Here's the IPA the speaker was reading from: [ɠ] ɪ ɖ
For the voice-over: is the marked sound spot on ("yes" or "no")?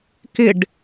no